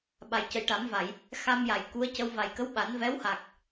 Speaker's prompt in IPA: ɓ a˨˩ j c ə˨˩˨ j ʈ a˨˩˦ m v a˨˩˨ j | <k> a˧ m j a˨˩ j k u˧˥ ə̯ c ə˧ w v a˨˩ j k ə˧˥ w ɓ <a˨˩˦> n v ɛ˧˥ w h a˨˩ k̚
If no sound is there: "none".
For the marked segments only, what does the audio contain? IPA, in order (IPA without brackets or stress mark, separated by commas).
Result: x, a˨˩˦